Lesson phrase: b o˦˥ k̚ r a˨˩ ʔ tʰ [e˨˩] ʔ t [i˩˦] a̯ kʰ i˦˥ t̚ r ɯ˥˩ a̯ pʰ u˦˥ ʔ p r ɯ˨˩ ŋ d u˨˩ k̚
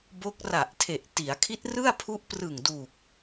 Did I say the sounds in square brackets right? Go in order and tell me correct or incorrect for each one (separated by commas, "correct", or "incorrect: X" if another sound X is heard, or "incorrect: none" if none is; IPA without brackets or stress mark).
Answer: correct, correct